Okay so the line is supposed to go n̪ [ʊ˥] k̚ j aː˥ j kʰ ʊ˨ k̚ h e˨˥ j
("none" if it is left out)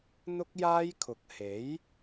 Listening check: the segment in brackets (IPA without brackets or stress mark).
ʊ˥